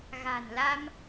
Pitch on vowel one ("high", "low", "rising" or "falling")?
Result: low